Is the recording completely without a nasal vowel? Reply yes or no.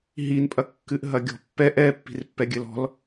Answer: yes